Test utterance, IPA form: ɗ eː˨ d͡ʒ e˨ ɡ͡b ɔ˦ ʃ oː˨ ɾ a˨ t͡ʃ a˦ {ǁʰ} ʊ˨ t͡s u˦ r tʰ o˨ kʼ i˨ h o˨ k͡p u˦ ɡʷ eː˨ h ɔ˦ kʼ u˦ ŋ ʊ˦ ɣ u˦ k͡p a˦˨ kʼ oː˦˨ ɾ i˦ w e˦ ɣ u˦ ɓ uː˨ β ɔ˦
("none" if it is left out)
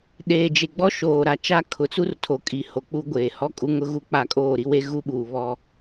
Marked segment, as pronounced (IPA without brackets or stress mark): kʰ